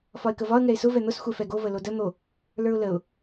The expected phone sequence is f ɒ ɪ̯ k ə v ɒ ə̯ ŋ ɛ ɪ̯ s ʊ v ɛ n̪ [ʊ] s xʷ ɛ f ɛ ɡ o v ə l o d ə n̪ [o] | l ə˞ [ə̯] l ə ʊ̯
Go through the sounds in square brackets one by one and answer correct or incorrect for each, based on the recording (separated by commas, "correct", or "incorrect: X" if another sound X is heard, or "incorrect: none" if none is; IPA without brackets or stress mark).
correct, correct, incorrect: ʊ̯